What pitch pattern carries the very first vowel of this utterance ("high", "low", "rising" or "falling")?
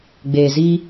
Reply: low